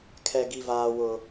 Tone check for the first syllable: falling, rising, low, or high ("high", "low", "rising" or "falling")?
high